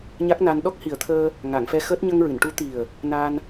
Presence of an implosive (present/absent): present